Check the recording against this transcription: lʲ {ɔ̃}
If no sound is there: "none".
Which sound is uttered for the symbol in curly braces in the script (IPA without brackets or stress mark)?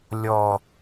ɔ